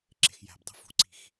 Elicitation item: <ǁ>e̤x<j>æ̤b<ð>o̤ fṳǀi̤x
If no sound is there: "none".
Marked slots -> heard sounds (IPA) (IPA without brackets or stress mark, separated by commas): ǁ, j, dˤ